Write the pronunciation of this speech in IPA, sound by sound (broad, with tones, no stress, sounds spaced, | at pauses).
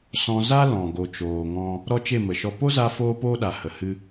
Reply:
s ɔ̃˧ z a˦ l ɔ̃˨ ɡ o˨ t͡ʃ oː˨ ŋ ɔ̃˧ | ɾ ɔ˦ t͡ʃ e˦˨ m ə˨ ʃ ɔ˧ p o˦ z a˧ f oː˦ p oː˦ ɗ a˨ h ə˨ h ɨ˧